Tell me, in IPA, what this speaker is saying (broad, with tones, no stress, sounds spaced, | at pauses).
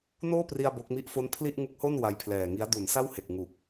n oː˥˩ p r i˧ a̯ b o˦˥ k̚ m i˥˩ ʔ f o˥˩ n pʰ l i˥˩ ʔ ŋ u˦˥ k̚ h o˥˩ n w a˧ j pʰ l ɛː˨˩ ŋ i˦˥ a̯ d u˩˦ n s a˥˩ w h e˨˩ k̚ ŋ u˨˩ k̚